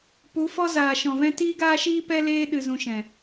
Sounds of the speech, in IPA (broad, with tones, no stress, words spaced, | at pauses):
pu˨˦fɔ˦ zaː˨ʃɔ̃˨vɛ̃˦ tiː˦ɡaː˦ʃiː˦pɛ˦ leː˦ ɗɨ˧zũ˧ʃɛ̃˨